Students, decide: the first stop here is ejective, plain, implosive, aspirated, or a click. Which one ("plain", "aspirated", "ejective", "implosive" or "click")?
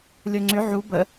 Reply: click